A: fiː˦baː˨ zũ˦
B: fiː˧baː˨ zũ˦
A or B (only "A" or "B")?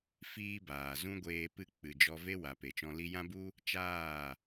A